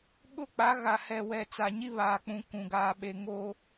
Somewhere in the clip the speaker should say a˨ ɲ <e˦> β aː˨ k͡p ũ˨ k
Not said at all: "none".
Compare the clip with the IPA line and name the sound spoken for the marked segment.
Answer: i˦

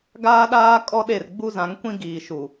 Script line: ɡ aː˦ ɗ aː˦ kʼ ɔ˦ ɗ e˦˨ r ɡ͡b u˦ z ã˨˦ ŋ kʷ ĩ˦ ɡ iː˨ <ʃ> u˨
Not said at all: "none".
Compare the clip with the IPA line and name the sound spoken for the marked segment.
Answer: ʃ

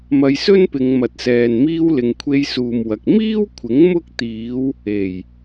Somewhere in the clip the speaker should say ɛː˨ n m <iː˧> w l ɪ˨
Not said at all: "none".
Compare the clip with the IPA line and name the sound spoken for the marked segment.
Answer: iː˧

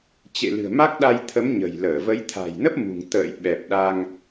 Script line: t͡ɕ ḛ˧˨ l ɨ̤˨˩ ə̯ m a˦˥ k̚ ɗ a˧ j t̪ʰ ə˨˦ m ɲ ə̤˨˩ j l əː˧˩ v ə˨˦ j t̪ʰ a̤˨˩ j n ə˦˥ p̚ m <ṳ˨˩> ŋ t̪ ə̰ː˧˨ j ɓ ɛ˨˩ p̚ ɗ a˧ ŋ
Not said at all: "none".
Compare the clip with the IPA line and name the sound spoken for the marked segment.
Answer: ṳ˨˩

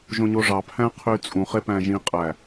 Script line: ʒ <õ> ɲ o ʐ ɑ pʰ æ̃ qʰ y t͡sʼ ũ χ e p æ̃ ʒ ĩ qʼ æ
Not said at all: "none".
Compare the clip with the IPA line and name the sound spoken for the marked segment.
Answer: õ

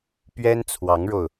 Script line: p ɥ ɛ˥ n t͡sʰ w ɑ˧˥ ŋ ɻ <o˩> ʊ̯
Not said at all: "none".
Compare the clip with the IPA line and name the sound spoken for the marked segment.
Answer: o˧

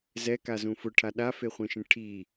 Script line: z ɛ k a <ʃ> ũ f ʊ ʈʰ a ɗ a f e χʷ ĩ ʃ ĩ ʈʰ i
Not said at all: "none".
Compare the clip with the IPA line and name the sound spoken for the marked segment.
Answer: z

